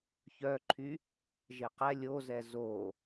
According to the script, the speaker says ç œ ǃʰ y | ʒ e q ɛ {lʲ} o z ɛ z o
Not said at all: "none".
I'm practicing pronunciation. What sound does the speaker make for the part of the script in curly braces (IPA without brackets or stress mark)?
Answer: lʲ